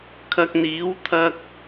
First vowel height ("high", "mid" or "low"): low